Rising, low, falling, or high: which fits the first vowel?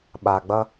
low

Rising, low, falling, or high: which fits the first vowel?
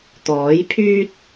rising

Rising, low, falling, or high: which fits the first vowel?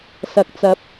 low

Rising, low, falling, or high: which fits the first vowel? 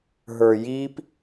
low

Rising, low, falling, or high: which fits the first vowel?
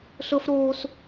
high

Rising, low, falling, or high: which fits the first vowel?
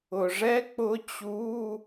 low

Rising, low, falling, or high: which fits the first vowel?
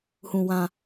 low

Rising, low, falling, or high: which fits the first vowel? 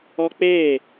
high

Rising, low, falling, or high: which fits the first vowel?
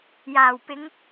low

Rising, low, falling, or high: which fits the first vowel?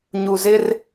low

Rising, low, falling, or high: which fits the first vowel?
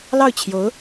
falling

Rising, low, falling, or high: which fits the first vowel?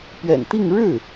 low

